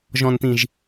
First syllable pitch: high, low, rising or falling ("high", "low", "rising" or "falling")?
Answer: low